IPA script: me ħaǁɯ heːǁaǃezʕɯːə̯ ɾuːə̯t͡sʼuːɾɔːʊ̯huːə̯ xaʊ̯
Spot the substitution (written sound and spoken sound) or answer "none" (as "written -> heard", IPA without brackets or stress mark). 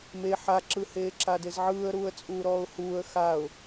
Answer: ǃ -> d